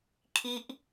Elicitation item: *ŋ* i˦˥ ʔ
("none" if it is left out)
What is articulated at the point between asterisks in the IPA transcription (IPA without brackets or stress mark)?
kʰ